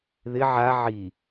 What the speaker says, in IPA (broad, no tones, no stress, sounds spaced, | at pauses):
ð ɪ ʕ a ʕ i